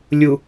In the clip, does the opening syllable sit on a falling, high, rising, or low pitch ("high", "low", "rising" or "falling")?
low